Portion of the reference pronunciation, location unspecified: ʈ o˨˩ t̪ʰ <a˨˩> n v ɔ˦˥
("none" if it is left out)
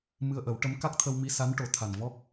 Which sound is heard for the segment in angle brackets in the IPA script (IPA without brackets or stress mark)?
a˨˩